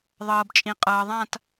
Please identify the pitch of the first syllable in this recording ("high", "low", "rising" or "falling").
low